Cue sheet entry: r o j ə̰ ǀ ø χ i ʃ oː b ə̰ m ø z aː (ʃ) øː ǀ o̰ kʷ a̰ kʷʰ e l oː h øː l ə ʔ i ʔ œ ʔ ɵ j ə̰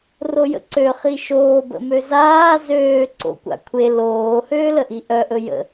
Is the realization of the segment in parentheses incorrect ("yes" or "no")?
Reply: yes